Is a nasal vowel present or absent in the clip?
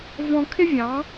present